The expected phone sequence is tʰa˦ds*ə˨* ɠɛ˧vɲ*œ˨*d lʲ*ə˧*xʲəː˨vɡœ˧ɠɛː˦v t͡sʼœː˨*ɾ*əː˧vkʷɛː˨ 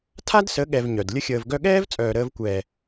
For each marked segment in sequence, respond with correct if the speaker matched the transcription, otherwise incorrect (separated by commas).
incorrect, correct, correct, correct